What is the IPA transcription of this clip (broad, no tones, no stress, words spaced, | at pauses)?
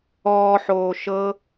ɔːħoː ʃɤ